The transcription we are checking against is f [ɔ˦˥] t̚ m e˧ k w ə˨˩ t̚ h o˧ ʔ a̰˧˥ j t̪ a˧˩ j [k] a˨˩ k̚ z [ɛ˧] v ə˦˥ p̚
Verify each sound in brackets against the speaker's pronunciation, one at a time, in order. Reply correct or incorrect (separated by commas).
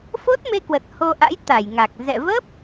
incorrect, incorrect, incorrect